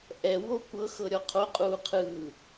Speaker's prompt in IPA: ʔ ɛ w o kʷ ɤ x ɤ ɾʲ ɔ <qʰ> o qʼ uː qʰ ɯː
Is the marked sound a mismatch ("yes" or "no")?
no